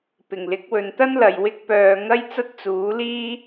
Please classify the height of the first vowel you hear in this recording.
high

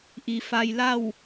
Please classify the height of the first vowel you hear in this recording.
high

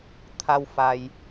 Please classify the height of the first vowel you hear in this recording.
low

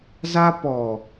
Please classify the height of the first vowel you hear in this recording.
low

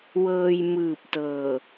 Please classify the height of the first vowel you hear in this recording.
mid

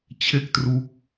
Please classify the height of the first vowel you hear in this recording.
mid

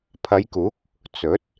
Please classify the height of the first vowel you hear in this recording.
low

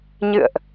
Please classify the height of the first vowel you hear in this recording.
high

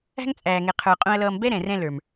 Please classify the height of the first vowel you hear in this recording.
low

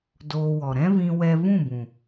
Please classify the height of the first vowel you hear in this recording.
mid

